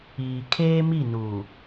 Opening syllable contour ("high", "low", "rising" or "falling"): low